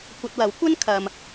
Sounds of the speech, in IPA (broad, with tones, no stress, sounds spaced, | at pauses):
kʷ ɐ˧ t̚ w ɐ˨˥ w kʷ ɐ˥ n kʰ ɐ˧ m